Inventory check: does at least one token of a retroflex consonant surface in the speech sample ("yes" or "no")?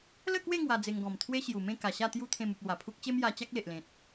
no